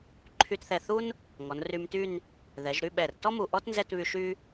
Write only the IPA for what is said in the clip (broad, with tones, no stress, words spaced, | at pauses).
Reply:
ǃʰy˧tθɛ˧˩θu˥n | ŋɔ˩˧nry˧mty˥˧n | ðɛ˩˧ʒɾy˥˧ɓɛ˧˩r tɔ˥mu˧˩ ʔɔ˥tnzɛ˥˧tβy˧ ʃy˥